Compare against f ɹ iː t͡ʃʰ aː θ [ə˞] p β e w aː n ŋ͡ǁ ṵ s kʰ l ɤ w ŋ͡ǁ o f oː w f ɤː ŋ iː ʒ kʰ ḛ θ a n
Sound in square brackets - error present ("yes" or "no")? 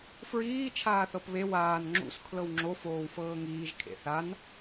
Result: yes